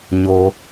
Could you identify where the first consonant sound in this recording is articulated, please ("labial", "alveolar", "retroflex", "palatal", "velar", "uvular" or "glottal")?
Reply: palatal